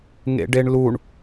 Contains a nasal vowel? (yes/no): no